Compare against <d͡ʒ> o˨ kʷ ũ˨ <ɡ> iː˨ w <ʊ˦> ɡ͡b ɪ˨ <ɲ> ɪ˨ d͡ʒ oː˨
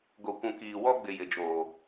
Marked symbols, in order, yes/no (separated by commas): no, no, no, no